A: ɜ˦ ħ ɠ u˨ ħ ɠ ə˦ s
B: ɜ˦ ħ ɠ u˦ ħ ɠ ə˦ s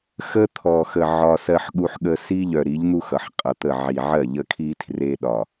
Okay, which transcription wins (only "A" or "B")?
B